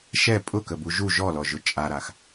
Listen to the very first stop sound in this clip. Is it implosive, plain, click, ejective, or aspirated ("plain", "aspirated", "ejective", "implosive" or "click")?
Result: ejective